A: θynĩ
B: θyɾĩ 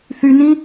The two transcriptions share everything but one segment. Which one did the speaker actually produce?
A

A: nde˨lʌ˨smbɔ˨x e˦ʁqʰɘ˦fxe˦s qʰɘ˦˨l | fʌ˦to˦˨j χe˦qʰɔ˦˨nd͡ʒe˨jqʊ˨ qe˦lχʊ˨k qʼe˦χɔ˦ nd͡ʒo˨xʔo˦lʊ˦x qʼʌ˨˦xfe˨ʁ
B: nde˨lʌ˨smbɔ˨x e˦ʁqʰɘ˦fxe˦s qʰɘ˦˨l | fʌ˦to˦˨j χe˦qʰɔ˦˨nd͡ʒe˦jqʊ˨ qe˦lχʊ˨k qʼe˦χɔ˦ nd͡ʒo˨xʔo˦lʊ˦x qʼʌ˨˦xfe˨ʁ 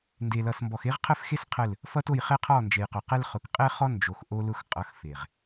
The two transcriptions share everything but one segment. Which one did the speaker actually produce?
A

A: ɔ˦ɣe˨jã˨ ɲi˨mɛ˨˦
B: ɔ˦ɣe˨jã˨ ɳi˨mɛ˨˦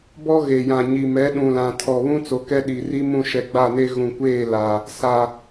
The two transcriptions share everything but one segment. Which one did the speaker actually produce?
A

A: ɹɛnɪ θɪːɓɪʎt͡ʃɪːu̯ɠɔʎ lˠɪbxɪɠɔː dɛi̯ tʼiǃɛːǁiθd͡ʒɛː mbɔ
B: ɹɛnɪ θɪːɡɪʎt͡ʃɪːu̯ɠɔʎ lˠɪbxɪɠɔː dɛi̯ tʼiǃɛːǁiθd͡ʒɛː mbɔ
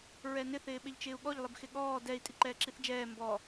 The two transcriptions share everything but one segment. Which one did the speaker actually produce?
A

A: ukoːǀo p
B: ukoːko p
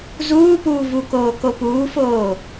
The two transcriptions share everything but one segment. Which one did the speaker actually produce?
B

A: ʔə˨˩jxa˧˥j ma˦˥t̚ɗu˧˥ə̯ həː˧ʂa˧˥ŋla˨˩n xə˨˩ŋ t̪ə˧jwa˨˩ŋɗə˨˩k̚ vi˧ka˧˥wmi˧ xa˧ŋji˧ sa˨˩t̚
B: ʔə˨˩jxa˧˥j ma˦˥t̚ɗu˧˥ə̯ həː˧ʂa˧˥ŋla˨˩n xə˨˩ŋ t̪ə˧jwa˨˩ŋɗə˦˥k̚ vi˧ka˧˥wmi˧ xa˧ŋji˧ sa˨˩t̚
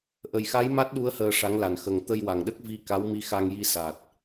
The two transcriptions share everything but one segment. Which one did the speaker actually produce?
B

